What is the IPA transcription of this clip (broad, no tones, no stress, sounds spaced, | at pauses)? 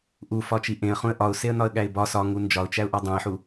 ʔ u f ɒ t͡ʃ i ʔ ẽ ə̯ χ ũ ə̯ ʔ ɒ ʊ̯ s e ə̯ n ɒ ə̯ ɠ æ ɪ̯ b ɒ s ɒ ŋ u n d͡ʒ ɒ ʊ̯ t͡ʃ æ ʊ̯ ʔ ɒ dˤ õ ɪ̯ ħ u